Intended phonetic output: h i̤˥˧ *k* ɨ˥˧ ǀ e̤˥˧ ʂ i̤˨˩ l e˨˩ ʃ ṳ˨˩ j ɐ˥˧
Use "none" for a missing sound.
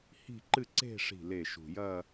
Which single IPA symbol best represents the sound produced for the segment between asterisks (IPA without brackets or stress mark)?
ǃ